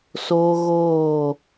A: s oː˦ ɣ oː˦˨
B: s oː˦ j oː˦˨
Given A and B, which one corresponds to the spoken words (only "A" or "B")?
A